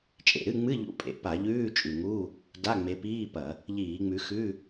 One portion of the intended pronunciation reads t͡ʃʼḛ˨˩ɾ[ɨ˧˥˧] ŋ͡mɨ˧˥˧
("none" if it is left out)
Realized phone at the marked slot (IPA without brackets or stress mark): ɨ˧˥˧